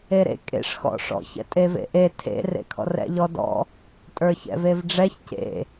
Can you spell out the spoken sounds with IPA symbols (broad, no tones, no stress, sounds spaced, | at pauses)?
e ɾ ḛ kʼ ḛ ʂ x ɔ̰ ʂ ɔ̰ ç ɛ̰ tʼ e v ḛ ʔ e tʰ ḛ r ḛ kʰ ɔ̰ r ɛ̰ ʎ ɔ d ɔ̰ | tʼ ə˞ ç ɛ̰ v e v ɖ͡ʐ ɛ ç c ḛ